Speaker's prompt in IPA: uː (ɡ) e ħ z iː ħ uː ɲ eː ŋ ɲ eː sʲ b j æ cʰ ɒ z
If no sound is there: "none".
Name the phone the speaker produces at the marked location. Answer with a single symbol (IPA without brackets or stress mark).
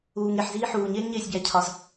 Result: ŋ